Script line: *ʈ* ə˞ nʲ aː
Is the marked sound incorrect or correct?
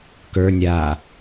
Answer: incorrect